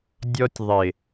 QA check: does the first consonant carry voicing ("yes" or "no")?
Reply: yes